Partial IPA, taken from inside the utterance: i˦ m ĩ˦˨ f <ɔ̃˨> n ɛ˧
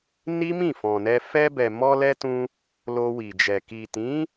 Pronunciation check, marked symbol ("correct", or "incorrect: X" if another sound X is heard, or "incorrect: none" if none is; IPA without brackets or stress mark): correct